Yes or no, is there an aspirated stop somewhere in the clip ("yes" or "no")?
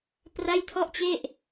yes